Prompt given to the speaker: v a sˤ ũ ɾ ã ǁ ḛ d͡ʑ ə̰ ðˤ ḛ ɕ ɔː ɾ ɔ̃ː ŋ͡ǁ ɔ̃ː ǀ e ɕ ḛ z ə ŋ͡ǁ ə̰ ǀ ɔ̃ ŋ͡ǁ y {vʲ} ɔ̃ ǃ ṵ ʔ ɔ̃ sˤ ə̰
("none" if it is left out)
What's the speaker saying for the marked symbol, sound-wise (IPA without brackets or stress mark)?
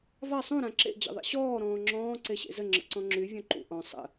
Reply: vʲ